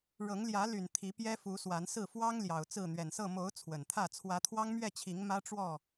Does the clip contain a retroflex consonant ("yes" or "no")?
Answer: yes